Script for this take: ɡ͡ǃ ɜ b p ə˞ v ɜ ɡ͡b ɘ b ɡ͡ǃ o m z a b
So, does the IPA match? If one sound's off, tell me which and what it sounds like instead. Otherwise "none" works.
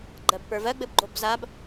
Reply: m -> b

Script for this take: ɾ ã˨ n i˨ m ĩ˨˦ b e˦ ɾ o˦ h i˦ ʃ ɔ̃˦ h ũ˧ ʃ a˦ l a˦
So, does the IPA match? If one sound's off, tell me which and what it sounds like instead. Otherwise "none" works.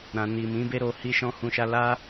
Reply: o˦ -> o˧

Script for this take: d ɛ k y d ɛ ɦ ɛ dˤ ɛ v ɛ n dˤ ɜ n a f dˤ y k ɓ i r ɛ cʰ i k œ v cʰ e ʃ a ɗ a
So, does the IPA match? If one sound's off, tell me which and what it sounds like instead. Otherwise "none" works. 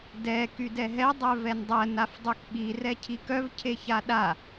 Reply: ʃ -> ç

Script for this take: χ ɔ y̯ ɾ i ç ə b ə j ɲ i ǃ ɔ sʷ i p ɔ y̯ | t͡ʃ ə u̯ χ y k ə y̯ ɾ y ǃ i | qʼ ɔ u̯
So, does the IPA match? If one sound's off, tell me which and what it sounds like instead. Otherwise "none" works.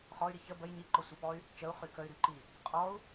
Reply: none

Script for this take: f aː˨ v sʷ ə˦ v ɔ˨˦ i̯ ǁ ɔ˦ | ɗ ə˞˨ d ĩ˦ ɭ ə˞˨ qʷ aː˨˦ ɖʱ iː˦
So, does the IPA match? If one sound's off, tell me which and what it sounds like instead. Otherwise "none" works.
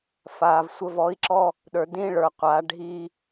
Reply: none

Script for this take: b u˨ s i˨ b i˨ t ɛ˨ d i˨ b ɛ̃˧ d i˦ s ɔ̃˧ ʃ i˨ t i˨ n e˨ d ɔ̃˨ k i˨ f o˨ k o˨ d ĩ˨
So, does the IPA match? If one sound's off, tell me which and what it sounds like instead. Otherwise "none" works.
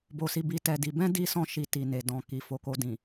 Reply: u˨ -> o˨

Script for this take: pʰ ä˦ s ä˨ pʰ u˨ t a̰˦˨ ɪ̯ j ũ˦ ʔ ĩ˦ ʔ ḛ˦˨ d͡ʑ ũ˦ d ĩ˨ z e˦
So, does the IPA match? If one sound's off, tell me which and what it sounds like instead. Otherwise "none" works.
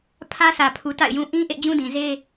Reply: none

